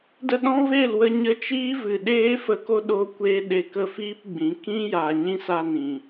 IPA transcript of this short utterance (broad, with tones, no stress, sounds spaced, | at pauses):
d ə˧ ɗ ɔ̃˦ v e˦˨ l w ə˧ ɲ ə˧ t͡ʃ iː˦ v ɨ˨ ɗ eː˦ f ə˧ k o˦ ɗ o˦ kʷ eː˦ ɗ e˧ k ə˦˨ f iː˦ p ɡ͡b ĩ˨˦ k ĩ˦ j a˨ ɲ ĩ˦ s a˧ n ĩ˨